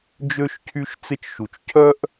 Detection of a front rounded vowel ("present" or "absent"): present